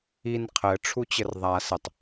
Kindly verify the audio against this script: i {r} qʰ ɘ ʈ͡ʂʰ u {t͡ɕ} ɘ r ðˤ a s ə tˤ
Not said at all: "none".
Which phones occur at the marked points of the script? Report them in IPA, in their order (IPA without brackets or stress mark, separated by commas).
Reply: n, t͡ɕ